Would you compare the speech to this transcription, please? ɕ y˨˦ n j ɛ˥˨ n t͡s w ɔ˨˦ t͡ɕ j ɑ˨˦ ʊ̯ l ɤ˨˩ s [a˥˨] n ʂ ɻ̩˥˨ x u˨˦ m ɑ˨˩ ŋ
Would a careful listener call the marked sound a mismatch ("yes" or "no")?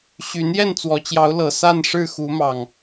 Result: no